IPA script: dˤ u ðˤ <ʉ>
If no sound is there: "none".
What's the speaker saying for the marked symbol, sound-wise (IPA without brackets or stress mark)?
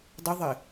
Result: ɘ